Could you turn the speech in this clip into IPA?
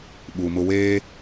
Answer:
ɓ u˨ m ʊ˦ w eː˦

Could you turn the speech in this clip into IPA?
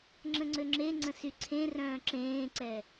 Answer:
ŋ͡ǁ ə̃ ŋ͡ǀ ø ŋ͡ǁ e ŋ͡ǀ ə̃ s y ǀʰ ẽ r œ̃ː ǁ ẽː ǀ ɛ

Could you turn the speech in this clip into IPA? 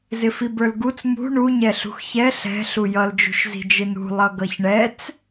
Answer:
z ɪ f i b ə˞ l ɡ u t͡s m ṳ ɳ u ɲ ɛ ɬ ṳ x ç ɛ ɬ ɛ̤ ɬ u j ʌ l d͡ʒ ṳ ʃ z i̤ d͡ʒ ɪ n ṳ lˠ ʌ ɡ ʌ ç ɳ ɛ t͡s

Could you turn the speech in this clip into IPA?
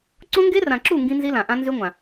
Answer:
ǀ õ˦ ŋ ɡ e˦ r ã˨ ǁ u˦˨ ŋ ɡ ĩ˦ n z i˦ l ã˨ ʔ ã˦ n z y˦ ŋʷ ã˨

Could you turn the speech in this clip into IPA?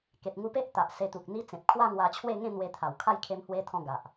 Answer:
k e˨ t̚ ŋ u˧ p e˦ ʔ t̪ a˨ ʔ s e˧ t̪ u˨ k̚ n̪ i˧ t͡s ẽ˨ p̚ kʰ w a˥˧ ŋ w a˧ t͡ɕʰ w e˥˧ ŋ ẽ˥˧ n̪ w e˧ t̪ʰ a˨˩ w kʰ a˥˧ j kʰ e˦ m h w e˦ t̪ʰ ɔ̃˥˧ ɡ a˨ ʔ

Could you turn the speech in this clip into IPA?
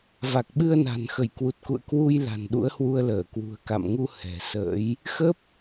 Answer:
v a˨˩ k̚ ɓ ɨ˧ ə̯ n a̤˨˩ n x ə˧˩ j k w u˨˩ t̚ k ṵ˧˨ ə̯ k w u˧ j l a̤˨˩ n ɗ ṵ˧˥ ə̯ h w u˧ ə̯ l əː˧˩ k w ṳ˨˩ ə̯ k a̰˧˨ m ŋ u˧ h ɛ̤˨˩ s ə̰ː˧˥ j | x ə˦˥ p̚

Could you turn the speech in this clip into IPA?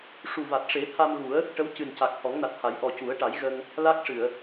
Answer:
ʂ u˨˩ v a˨˩ t̚ ʂ e˨˩˦ t̪ʰ a˧ m ɣ u˨˩˦ ə̯ | ʈ ə˧˥ w c ɨ˨˩ n c a˨˩ k̚ h ɔ˨˩˦ ŋ n a˨˩ t̚ h a˨˩˦ j ʔ ɔ˨˩ c u˨˩˦ ə̯ ʈ a˨˩˦ j ɣ ə˧ ŋ | l a˦˥ k̚ ʂ ɨ˨˩˨ ə̯

